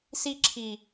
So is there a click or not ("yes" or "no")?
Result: yes